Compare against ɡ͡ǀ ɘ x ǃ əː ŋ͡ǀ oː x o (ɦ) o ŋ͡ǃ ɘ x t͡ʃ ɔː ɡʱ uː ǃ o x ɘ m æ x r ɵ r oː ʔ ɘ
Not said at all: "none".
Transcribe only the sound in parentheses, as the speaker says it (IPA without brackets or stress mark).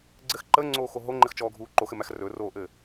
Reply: ɦ